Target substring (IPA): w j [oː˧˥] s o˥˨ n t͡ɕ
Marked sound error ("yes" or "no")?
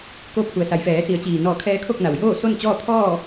yes